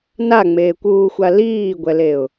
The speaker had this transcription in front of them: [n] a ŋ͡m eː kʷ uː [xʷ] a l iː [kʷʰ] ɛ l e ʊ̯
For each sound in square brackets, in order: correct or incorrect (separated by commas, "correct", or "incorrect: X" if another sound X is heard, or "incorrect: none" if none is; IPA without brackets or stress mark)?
correct, correct, incorrect: ɡʷ